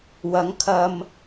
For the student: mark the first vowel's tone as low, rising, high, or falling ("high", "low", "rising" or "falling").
rising